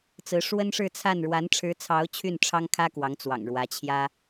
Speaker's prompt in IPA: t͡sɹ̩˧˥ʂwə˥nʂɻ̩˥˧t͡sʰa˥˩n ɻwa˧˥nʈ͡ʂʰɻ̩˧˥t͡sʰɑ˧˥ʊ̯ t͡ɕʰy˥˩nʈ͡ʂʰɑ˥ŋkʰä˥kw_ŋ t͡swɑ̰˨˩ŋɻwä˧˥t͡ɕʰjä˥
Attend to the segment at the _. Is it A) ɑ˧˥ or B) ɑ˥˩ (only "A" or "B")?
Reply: A